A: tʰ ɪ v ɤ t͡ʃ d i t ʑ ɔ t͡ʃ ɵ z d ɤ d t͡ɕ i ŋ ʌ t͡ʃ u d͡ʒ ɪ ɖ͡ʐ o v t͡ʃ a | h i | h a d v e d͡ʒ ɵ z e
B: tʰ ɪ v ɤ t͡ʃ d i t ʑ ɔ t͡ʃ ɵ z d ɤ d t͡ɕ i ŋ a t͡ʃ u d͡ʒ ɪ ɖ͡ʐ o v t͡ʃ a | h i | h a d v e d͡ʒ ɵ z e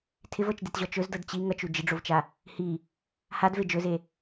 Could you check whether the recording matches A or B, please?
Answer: A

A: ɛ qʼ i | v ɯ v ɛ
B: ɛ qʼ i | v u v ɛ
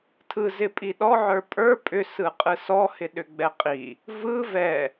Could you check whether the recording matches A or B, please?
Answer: A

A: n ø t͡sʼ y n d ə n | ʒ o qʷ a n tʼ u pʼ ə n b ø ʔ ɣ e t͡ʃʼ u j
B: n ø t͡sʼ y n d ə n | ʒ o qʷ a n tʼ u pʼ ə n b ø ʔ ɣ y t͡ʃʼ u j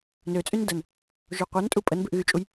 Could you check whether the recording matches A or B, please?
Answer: B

